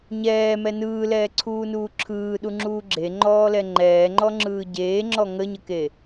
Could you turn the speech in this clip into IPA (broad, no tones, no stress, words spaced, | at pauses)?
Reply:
ɲɛːmɛ nɯːlɛːǀʰuːnuː ǁʰɯːɗuŋ͡ǁuː ɡ͡ǁeŋ͡ǃɔːlɛ ŋ͡ǃɛːŋ͡ǃɔŋ͡ǁɯː ɟeːŋ͡ǁɔ ŋəɲəke